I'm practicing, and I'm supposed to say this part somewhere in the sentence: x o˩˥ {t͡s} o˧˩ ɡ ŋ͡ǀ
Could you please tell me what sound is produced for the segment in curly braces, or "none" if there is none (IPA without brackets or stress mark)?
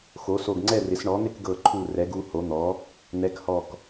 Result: s